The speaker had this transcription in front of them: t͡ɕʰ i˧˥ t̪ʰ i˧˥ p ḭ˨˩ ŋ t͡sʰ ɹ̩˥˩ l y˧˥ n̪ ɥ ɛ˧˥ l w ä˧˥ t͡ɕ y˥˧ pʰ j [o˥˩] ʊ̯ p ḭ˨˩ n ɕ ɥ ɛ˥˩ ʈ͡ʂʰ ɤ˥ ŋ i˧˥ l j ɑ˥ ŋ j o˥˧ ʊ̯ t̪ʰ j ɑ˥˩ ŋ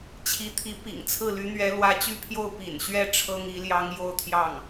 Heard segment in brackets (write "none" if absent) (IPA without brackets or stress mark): o˥˩